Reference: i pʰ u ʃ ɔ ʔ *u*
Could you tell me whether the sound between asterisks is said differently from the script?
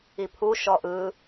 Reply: yes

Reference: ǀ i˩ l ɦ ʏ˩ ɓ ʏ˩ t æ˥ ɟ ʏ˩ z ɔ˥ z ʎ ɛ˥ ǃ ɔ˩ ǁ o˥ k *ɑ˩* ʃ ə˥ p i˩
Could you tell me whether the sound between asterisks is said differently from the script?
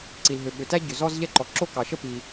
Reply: no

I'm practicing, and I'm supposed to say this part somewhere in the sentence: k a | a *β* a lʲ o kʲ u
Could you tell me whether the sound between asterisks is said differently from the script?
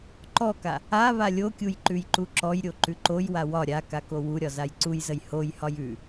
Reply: no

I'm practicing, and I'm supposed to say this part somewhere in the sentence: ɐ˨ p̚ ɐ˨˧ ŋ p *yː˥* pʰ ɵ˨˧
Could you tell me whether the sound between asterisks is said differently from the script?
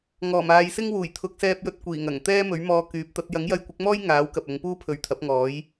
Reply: yes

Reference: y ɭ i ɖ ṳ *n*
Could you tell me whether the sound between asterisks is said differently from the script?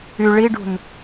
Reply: no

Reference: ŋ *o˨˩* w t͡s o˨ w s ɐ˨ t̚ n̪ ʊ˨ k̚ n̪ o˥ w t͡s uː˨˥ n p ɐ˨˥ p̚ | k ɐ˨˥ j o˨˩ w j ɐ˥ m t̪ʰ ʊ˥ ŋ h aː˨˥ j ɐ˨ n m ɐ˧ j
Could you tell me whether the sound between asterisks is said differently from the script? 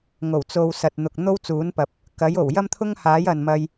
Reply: no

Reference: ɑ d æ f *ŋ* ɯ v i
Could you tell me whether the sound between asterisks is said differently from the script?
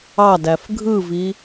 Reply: yes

